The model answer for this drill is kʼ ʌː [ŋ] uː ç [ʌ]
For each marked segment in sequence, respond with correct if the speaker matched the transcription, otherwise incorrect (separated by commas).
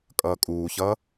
incorrect, correct